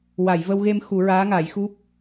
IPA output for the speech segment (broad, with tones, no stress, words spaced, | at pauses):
wa˨˩˨j və˧wɣe˧mxu˨˩˦ ɹaː˧˥ŋa˨˩˦jxu˦˥p̚